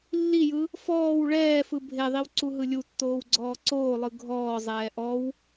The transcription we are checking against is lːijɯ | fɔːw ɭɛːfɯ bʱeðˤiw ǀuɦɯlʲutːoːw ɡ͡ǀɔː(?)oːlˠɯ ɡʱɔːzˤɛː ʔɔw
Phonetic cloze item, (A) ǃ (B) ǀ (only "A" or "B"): B